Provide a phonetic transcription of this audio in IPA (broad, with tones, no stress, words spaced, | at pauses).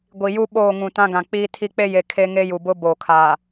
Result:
ɡʷi˨ju˦ ɓoː˦˨ŋũ˨tã˦ ɡã˨k͡piː˦ tʰi˦k͡pe˦ je˨ kʰe˦ŋe˦ju˨bʊ˦ boː˨kʰaː˨